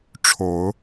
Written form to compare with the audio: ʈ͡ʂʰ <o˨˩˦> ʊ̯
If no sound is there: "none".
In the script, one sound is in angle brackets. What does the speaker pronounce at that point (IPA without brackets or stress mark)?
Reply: o˨˩˦